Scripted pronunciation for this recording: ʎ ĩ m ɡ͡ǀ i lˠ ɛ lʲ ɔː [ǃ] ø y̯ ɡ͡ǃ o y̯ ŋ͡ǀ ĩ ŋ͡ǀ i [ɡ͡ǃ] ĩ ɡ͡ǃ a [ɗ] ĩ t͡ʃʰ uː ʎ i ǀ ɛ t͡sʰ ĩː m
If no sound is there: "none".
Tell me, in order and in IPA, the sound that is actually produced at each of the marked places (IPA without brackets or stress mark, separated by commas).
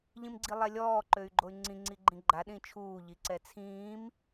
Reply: ǃ, ɡ͡ǃ, ɗ